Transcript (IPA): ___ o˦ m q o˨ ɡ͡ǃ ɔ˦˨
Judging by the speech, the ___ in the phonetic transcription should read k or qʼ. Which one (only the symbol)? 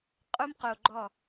qʼ